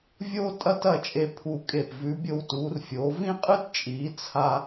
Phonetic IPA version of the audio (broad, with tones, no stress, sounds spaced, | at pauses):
vʲ oː˥ tʼ ɐ˥˧ t ɐ˥˧ t͡ʃʼ e˧ pʰ u˧˩ kʼ e˧˩ p v ʉ˩˧ bʲ o˧ w t uː˩˧ r fʲ oː˩˧ v ĩ˥ qʼ ɨ˥ t t͡ʃʼ iː˩˧ t͡sʰ a˧